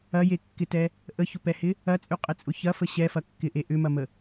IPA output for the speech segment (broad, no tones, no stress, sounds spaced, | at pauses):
ɐ j e kː ɪ t ɛ | ʔ ə ç ʊ p ɛ h ɪ | ɐ t͡sʼ y qʼ ɪ t͡sʼ ʊ ç ɐ f ə ɕ ɛ f ɐ kː ɪ ʔ e ʔ ʏ m ɐ m ə